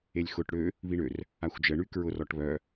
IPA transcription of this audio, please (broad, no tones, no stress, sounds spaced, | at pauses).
e lʲ x ʊ ʈ ɽ ø | β i ɳ ø r | a xʷ d͡ʒ ə ɳ y k ɹ ʊ r ɔ ʈ β œ